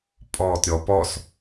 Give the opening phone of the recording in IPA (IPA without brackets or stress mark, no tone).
pʼ